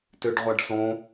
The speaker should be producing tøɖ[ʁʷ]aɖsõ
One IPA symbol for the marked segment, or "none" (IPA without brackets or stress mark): ʁʷ